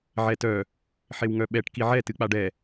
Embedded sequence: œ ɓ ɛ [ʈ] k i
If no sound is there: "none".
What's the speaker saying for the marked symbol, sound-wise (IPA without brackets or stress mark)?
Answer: ʈ